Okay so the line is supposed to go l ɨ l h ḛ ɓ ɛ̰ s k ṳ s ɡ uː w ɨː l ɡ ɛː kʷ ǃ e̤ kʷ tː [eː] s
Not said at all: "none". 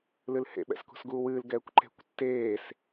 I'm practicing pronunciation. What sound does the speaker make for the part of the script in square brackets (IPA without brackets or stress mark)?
eː